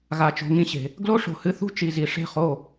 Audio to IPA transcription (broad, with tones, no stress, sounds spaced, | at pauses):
ɣ a˧ t͡ʃ o̤˧ ŋ ĩ˦ ɕ e̤˨ | ɡ l o˦ ʂ o̤˨ h ɨ˧ θ ṳ˦ t͡ʃ i˨ z i˨ ʂ e̤˦˨ χ o˦˨